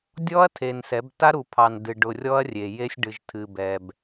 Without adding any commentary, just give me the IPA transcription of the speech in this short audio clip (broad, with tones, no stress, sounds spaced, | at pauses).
dʲ ɔ˦ ɐ̯ tʰ e˨ n s ɛ˨˦ b t a˦ ɾ u˨ pʰ ɑ˨ n d ɨ˨ ɖ ʊ˨ rʲ ɔ˦ ɐ̯ rʲ e˨ j e˦ sʲ ɖ ɨ˨ ʒ tʰ ɨ˨ b ɛ˨ b